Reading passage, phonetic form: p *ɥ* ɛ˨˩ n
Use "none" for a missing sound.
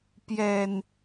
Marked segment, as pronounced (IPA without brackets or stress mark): j